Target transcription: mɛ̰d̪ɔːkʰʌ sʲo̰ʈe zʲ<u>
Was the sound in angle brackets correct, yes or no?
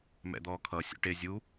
yes